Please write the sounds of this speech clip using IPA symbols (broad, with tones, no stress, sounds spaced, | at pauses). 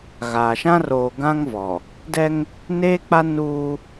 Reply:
ɣ aː˨ ʃ ã˦ r oː˨ ɡ ã˦ ŋ v ɔ˨ | d ɛ˦ ŋ | n eː˦ k͡p a˦ n uː˦